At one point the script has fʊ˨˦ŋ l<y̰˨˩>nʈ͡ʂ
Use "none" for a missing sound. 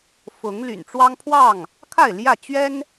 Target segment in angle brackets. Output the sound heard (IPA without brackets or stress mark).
y̰˨˩